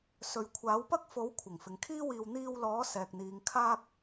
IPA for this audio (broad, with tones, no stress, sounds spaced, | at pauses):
s ɵ˨˧ ɥ kʷʰ aː˨˥ w p ɐ˥ k̚ f o˨˥ w kʷʰ ɪ˨˩ ŋ f ɪ˨ ŋ kʰ iː˥ w iː˧ w n̪ iː˧ w l ɔː˨˥ s ɛː˨ k̚ n̪ iː˨˧ ŋ kʰ aː˧ k̚